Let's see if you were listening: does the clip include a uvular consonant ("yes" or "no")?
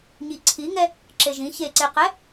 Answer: yes